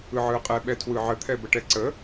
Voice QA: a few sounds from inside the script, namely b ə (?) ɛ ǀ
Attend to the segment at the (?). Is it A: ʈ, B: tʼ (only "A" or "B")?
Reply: A